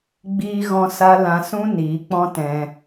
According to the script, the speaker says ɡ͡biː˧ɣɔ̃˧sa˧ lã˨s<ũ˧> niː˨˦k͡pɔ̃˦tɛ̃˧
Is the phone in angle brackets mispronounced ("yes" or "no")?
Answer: no